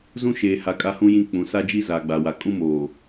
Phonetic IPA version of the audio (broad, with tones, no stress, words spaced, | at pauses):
zũ˦ʃeː˨ha˨ kʼa˦hũ˦jĩ˦ k͡pũ˨˦ sa˦d͡ʒi˦ zaː˨ɡ͡ba˨wa˨ kʼũ˦moː˨